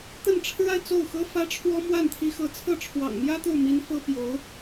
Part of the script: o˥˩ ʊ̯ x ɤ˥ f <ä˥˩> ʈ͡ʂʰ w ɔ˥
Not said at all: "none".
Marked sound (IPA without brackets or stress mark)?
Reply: ä˥